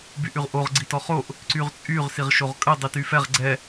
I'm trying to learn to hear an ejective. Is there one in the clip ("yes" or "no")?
yes